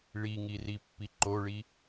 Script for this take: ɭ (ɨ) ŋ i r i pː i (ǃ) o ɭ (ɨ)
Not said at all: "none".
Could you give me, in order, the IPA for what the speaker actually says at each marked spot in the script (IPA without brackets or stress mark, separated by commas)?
i, ǃ, i